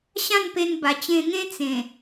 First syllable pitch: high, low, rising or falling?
falling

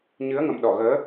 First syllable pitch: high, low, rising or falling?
rising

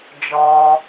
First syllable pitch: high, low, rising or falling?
low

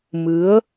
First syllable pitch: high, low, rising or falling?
rising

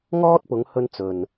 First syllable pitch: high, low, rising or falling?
high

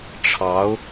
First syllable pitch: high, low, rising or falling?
rising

